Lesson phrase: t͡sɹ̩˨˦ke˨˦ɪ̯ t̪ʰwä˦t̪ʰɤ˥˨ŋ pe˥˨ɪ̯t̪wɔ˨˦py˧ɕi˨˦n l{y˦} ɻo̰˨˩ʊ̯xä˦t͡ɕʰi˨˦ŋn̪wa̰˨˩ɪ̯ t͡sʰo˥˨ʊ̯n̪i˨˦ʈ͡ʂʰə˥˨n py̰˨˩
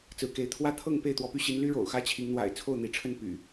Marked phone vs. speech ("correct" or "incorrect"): correct